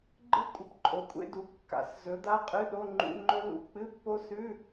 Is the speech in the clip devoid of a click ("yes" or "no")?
no